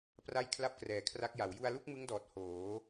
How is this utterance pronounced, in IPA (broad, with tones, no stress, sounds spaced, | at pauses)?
p r a˥˩ j kʰ l a˥˩ p̚ k r ɛː˨˩ kʰ r a˦˥ k̚ j a˩˦ w j u˧ a̯ l u˥˩ k̚ m ɯ˦˥ ŋ d ɔː˨˩ t̚ h oː˩˦